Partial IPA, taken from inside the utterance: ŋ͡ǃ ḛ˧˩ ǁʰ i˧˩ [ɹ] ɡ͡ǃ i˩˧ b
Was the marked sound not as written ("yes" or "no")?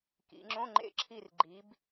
yes